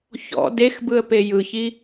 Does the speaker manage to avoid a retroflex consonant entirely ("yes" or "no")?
yes